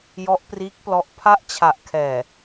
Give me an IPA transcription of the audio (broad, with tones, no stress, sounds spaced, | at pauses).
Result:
j ɔ˦˥ ʔ p r iː˦˥ k̚ p l ɔ˦˥ ʔ pʰ a˦˥ ʔ t͡ɕʰ a˨˩ ʔ kʰ ɛː˨˩